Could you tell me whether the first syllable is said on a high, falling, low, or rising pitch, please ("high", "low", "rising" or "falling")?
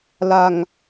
low